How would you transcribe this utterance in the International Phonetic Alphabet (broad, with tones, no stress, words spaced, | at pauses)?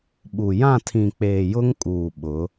ɓu˨ jã˦˨tʰĩ˨k͡peː˨ jʊ˦ŋkʼuː˨ ɓʊ˨˦